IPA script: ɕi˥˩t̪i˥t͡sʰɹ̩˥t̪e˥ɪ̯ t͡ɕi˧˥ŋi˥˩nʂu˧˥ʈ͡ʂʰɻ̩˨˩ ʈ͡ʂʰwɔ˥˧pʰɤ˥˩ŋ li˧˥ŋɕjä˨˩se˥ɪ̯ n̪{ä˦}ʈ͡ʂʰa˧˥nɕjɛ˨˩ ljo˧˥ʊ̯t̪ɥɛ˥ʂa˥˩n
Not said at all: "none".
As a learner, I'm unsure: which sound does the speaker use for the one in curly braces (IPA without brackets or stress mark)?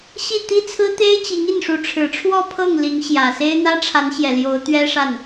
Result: ä˥